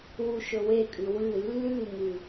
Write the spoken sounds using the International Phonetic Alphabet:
wuʃɵwekʼʉ wɨ lːʉŋɨ

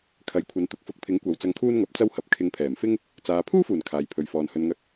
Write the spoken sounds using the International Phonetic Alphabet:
kʰɐ˨˧jkʷʰɐ˨˧n t̪ʊ˨k̚fʊ˧k̚pʰɪ˨˥ŋkʷɐ˨˧w t͡sɐ˧ŋkʰuː˥nŋɐ˨˥p̚ t͡sɐ˥whɐ˨˥p̚ kʰɪ˨˧ŋpʰɛː˨˩mfɪ˥ŋ | t͡saː˨ pʰuː˥fuː˨˩n kʰaː˨jpʰɵ˨ɥfɔː˨n hɵ˨nŋɐ˧k̚

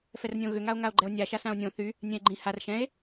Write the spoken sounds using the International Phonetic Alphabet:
fɛrnʲõɣʏ ŋao̯ŋao̯ɡ͡ǃɛo̯nʲa ʃasão̯nʲõ θy | nʲɛ̃e̯ɡ͡ǃĩ har ʃɛ̃e̯

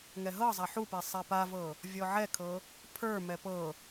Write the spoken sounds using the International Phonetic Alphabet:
ŋɛɦɤzˤa ħupe sˤɛpavɤ | vʲɔʕɛkʰɤ | pʰə˞mɛ pɤ

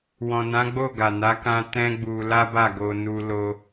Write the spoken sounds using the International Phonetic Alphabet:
wɔ̃˨nã˨˦ɡ͡bo˦˨ ɡa˨ na˨˦kã˧ tɛ̃˦ɡ͡bu˧ la˦ba˦˨ ɡo˧ nu˦ lo˦

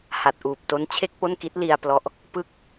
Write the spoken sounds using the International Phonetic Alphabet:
ha˨˩t̚ʔuː˨˩p̚to˦˥n t͡ɕʰe˥˩k̚po˥˩nki˦˥t̚ li˧a̯ plɔ˦˥ʔ | pɯ˥˩k̚

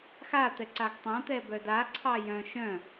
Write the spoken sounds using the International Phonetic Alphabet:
xat̪ɛǀaɡ tˤãt̪ɛbœ daǀʰɑ jœ̃ ʃœ̃

